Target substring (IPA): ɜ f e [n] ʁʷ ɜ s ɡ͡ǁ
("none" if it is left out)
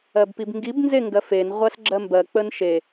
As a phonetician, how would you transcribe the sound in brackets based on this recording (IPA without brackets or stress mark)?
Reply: n